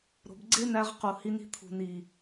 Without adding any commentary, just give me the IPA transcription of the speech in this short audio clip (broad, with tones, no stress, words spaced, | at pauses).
ɾo̤˨bɡ͡ǀe˦næ˧ʁqu˨ hi˧ni̤˧t̪ʰṳ˨ni˨